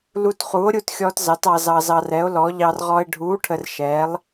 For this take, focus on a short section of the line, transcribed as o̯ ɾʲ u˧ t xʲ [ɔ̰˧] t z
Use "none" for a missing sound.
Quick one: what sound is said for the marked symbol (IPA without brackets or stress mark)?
ɔ˧